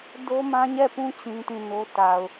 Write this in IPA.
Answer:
d o˦ m ã˦ ɲ ɛ˦˨ p ũ˦ t͡ɕ ĩ˦ t ĩ˦˨ n o˦ t a˨ ʊ̯

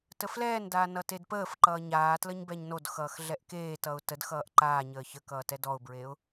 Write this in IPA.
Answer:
t ə f l ɛː n d aː n ʌ t e d p əː f ǃ ʌː ɲ aː t l ə ɲ b ɛ ɲ n o d x ʌː x ɮ ɛ ʔ k eː t ʌ ʊ̯ t ə d x ʌː ʔ ǃ aː ɲ əː ç ə k ʌː t ɛ d ɔ ʊ̯ b ɹ eː ʊ̯

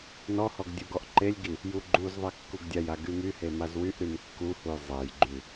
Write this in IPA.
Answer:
n ɔ h ɔ ɡ dʲ u ɡ ɔ ʔ ǃ e lʲ ɡ i | j u ɡ͡ǃ u z ðˤ e kː u ɡ dʲ a j a ɡ y m y h e m a z w y ʔ ɾ y m kː u h u j zˤ e j ɡ͡ǃ y

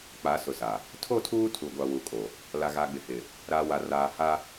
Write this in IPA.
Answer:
k͡p a˨˦ s ʊ˨ s a˨ | tʰ o˦˨ tʰ uː˦ tʰ u˨ ɡʷ a˨ w u˨ kʼ o˨ | l a˨ ɣ a˨ ɡ͡b ɪ˨ h ɪ˨ | ɾ a˨ w a˨ r aː˨ h a˦

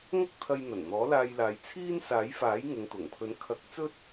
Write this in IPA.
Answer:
ŋ ɐ˥ k̚ t̪ʰ ɐ˧ j n̪ ɐ˨˩ n n̪ ɔː˨˥ l aː˧ j l aː˨˧ j t͡sʰ iː˥ n s aː˨˥ j f aː˨˥ j ŋ ʊ˨˧ ŋ t̪ ʊ˨˩ ŋ pʰ ɵ˨˥ n kʰ ɐ˨˥ k̚ t͡s ɵ˥ t̚

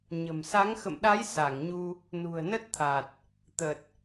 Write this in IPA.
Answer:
ɲ ə̤˨˩ m s a˨˦ ŋ x ə̰˧˨ m ɗ a˨˦ j s a˧˩ ŋ ɲ u˧ | n ṳ˨˩ ə̯ n ə˦˥ t̚ t̪ʰ a˨˩ t̚ | t̪ ə˨˩ t̚

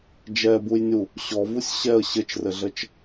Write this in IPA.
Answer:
d͡ʒ ɛ b u j nʲ u | ɕ ɔ v u sʲ ɕ ɛ ə̯ ɕ ɘ t͡ʃ r ɘ ɮ ə t͡ʃ

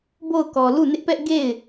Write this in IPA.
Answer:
b o˦˨ ʊ̯ k ɔ˨ l u˦˨ n ɪ˦ ʔ p ɛ˦ ʔ ɡ e˦˨ ɪ̯

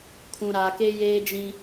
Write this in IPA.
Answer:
kʰ ũ˨ ɾ aː˨ k e˦ j eː˦ d͡ʒ ĩ˦

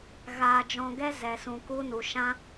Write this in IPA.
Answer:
ɣ aː˧ d͡ʒ ɔ̃˧ ɡ ɛ˦ z ɛ˧ s ũ˧ k u˦ n u˧ ʃ ã˦

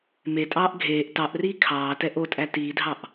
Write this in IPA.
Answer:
m e tʼ ɑː ʔ ɡʱ eː ʔ t ɑ ʔ r iː kʰ ɑː t ɛ ʔ o tʼ æ t iː dʱ ɑ ʔ

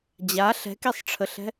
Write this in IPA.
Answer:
d͡ʑ a ɬ ɛ̤ k i sˤ ʈ͡ʂʰ ə ɬ ɛ̤

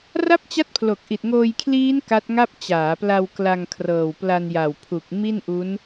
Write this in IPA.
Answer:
r a˥˩ p̚ t͡ɕ a˦˥ t̚ pʰ l o˨˩ k̚ ʔ i˨˩ t̚ ŋ oː˧ j kʰ l iː˦˥ n k a˦˥ t̚ ŋ a˥˩ p̚ t͡ɕ aː˩˦ p l a˧ w k l a˧ ŋ kʰ r ɤː˨˩ w p l a˧ n j a˨˩ w pʰ u˨˩ k̚ m i˥˩ n ʔ u˦˥ n

